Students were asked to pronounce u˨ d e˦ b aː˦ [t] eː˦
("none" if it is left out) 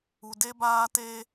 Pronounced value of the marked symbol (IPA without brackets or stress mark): t